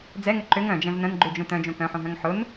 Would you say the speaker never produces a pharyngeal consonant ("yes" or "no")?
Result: no